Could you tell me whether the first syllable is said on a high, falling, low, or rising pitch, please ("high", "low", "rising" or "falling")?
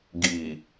low